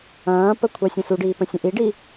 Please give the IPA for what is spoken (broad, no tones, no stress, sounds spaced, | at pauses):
ɐ̃ː p ə kʷʰ ɐ sʲ ə̃ s u ɖ iː p ə̃ sʲ ə̃ ʔ i ɖ i